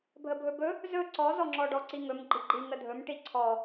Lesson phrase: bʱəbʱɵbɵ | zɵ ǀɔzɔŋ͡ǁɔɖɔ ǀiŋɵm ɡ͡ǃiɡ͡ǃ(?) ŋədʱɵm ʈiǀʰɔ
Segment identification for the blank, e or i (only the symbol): i